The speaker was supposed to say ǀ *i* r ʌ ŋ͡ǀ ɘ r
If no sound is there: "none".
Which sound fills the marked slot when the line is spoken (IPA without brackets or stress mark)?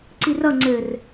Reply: i